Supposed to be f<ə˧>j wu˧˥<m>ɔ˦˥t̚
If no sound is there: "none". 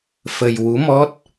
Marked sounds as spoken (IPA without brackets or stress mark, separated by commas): ə˧, m